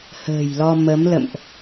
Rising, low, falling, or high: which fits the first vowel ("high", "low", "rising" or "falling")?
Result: low